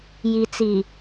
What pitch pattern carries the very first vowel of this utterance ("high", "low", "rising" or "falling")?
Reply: low